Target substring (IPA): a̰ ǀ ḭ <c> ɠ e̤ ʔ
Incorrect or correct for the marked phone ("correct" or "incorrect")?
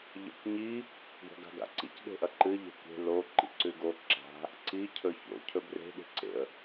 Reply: correct